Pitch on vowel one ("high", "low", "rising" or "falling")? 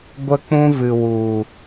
high